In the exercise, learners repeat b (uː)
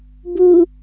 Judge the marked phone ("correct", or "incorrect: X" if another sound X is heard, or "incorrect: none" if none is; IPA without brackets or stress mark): incorrect: u